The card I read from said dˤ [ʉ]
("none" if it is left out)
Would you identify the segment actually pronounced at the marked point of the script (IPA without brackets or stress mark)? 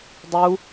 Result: u